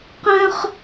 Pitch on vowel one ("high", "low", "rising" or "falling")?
high